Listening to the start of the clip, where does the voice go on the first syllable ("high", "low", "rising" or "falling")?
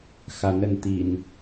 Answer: rising